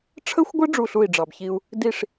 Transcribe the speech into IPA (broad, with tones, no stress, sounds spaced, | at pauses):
ʈ͡ʂʰ ə˦ xʷ ɡʷ ɘ˦ ɖ͡ʐ u˦˨ ɬ u˦˨ i̯ ɖ͡ʐ ɑ˨ b ç i˦ u̯ | d i˦˨ ʂ